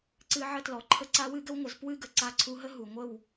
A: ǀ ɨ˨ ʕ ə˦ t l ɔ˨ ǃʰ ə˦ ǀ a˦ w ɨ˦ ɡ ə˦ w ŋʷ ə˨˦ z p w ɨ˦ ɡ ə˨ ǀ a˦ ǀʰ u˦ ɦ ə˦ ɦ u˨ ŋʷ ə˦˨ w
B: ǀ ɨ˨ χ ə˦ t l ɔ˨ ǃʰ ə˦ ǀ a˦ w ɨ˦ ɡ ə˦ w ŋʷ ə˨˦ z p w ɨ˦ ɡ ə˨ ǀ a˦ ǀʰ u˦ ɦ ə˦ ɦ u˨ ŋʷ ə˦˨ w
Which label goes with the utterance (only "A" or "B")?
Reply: A